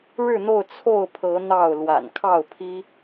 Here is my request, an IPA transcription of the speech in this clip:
ɻɻ̩˥˨n̪o˥˨ʊ̯ t͡sʰo˥˨ʊ̯pʰɤ˨˦ n̪ɑ˥˨ʊ̯ lwa̰˨˩nkʰɑ˥˨ʊ̯pʰi˦

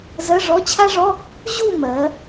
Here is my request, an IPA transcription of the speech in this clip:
zɜ˧˥˧ʐɔ˧˥˧t͡ɕʰa˥ ʐɔ˧˥˧ | ʑu˥˧ mɜ˩˧

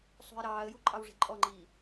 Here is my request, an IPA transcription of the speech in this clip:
sˤṳɪ̯ɾɑːə̯ju ǃʼɑwʐi̤ǃʼɔŋ͡ǃiː

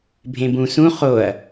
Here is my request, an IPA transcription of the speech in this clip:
bʱẽbũ sũ χoɐ̯

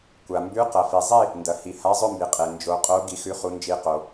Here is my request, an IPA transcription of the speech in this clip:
kʷa˩mbʉ˨˥ qɐ˩fi˩zˤi˥˨ | ndɐ˩hi˩ ha˨˥ zˤɵ˥˨mbi˩qʼe˩ nd͡ʒo˩˧qʼo˨˥ ɡi˩˧xʉ˩˧χu˩˧nd͡ʒi˩˧ qo˩

